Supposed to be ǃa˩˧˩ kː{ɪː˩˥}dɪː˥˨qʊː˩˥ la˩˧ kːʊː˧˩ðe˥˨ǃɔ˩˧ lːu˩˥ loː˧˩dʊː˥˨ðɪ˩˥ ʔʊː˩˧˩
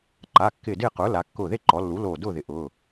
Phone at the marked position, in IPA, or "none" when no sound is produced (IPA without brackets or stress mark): ɪː˧˩